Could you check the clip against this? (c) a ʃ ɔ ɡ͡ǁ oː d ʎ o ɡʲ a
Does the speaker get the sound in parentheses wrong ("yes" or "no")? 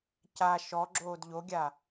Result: no